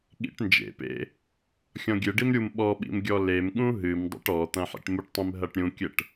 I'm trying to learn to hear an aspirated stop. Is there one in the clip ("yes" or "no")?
no